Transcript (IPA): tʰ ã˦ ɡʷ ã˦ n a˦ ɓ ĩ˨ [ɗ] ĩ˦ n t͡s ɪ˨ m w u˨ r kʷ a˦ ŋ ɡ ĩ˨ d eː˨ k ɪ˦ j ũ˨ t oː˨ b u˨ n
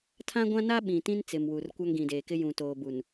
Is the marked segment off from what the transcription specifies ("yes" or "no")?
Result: yes